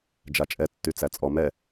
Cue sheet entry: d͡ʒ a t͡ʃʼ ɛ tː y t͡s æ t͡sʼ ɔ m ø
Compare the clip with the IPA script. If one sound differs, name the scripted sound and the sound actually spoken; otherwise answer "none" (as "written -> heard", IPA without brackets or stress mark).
ø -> ɛ